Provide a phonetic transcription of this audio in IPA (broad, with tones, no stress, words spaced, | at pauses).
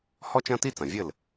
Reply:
hɔ˥t͡ʃɐ̃˥ti˥t͡sɐ̃˩ vʲɘ˥˩l